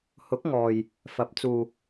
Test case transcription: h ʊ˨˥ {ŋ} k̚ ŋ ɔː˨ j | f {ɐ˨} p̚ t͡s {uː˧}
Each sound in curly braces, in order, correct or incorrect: incorrect, incorrect, correct

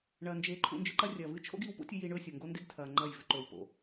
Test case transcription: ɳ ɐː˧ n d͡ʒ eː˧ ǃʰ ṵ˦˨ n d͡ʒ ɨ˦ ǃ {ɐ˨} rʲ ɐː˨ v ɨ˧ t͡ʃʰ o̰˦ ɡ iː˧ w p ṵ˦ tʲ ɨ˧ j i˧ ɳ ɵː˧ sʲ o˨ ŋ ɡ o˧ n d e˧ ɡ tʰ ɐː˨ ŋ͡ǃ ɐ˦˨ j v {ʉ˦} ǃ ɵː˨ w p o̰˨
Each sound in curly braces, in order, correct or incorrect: incorrect, incorrect

